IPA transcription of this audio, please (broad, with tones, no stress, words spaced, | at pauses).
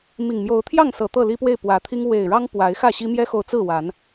mi˨˩ŋmjo˨˦ʊ̯t̪ʰjɑ˥˨ŋ sɤ˨˩ t̪ɤ˥˨li˦pwe˥˨ɪ̯ pwä˨˦t̪ʰi˦ŋ we˨˩ɪ̯ɻɑ˦ŋ pwa˨˦ɪ̯xä˥˨ɕi˦ mjɛ˦xo˨ʊ̯t͡sɹ̩˥˨wa˨˦n